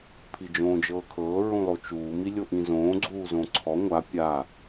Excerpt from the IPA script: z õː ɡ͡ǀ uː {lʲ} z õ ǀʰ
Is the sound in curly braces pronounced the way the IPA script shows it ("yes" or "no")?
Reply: no